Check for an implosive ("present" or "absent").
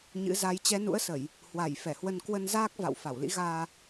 absent